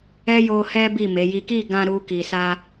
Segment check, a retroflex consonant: absent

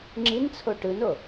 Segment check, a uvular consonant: absent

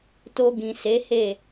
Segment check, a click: absent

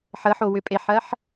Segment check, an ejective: present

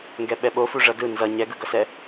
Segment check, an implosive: present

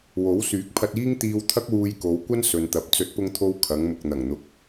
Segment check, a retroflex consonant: absent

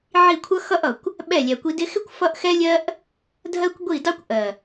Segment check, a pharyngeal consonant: present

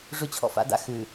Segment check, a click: absent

